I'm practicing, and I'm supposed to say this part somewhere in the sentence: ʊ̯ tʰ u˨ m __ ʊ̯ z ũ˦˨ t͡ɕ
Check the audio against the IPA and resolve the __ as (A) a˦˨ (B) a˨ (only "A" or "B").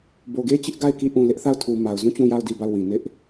B